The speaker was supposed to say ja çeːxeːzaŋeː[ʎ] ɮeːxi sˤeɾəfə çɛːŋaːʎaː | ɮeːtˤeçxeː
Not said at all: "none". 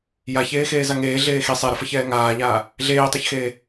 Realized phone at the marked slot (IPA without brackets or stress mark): none